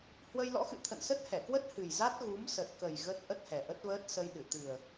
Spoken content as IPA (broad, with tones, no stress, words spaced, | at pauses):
hwə˧jlɔ̰˧˥xɨ̰˧˨ t̪ʰə̰˧˨nsə˦˥t̚hɛ˧˩kwə˦˥t̚ hɨ˨˩jza˦˥t̚ ɣu˨˦msə˨˩t̚kə˨˩j ɣə˦˥t̚ ʔə˦˥t̚hɛ˨˩ʔə˦˥t̚vəː˦˥t̚ sə˧jɗɨ˧˩ t̪ɨ˨˩ə̯